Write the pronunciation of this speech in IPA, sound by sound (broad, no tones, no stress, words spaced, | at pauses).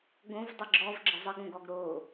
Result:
ɡõv dˤɯɡ͡ǁɔv ɡ͡ǁəzˤəɡõɡɔɡ ɾo